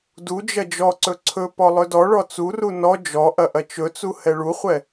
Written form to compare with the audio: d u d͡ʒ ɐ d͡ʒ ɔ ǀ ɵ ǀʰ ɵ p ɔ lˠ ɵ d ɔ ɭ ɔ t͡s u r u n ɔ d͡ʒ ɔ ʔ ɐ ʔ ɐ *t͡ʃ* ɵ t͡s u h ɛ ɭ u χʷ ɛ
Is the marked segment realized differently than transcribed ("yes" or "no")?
no